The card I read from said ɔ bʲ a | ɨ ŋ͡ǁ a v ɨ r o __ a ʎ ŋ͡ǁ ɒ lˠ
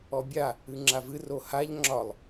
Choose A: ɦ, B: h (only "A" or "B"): B